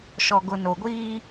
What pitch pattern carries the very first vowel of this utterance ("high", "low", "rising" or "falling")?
low